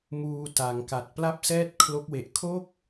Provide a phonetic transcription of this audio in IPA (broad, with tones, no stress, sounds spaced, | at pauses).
m uː˧ t a˩˦ ŋ k a˨˩ t̚ p l a˥˩ p̚ s ɛː˥˩ t̚ kʰ l o˦˥ k̚ w e˨˩ ʔ kʰ o˥˩ k̚